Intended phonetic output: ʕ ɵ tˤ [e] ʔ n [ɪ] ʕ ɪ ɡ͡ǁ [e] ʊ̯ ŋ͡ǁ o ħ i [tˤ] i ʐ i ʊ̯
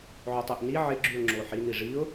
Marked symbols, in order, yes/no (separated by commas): no, no, no, no